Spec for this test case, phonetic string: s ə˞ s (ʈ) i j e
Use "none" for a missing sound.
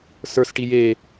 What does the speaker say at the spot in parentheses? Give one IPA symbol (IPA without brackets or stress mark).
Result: ʈ